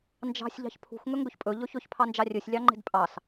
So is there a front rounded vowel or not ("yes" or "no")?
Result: no